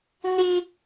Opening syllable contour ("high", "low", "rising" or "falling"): high